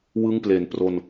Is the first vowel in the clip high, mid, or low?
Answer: high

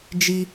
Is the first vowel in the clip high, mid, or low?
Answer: high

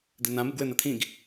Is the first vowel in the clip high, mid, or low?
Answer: mid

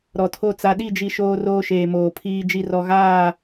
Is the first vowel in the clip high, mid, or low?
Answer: mid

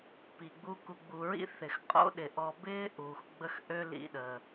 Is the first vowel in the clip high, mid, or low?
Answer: high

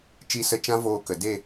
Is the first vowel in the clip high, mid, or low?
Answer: high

